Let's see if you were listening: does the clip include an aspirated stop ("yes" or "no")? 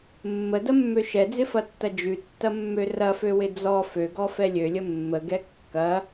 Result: no